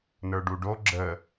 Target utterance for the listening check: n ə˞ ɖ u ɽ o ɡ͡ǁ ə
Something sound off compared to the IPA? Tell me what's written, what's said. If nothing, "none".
ɽ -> ɖ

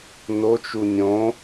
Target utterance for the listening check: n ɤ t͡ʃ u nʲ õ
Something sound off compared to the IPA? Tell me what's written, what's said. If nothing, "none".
ɤ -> o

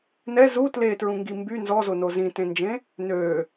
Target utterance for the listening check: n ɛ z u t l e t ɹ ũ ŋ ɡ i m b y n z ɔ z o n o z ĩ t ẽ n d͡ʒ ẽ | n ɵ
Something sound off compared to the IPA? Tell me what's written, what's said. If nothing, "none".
ɵ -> ø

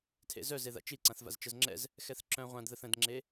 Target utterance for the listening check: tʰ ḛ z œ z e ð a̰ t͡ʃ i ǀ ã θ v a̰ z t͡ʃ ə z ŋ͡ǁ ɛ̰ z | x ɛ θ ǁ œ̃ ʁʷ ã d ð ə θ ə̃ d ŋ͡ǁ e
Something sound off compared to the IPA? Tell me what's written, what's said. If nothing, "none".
none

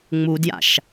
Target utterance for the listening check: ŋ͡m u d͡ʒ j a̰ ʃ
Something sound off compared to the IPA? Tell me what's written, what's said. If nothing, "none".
d͡ʒ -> d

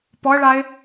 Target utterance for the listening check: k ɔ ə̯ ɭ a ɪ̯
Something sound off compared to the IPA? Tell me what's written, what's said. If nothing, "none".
k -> p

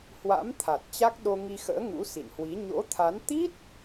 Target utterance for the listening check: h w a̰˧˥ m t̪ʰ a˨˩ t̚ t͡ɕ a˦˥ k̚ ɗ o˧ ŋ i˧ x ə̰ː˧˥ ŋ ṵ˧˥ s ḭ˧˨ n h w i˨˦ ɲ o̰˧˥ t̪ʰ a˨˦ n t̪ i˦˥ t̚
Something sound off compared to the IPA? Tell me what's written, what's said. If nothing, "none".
none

